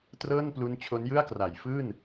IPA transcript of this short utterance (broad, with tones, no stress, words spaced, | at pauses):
trɤː˥˩nplu˦˥n t͡ɕʰo˦˥njɯ˥˩a̯ kra˩˦j fɯː˥˩n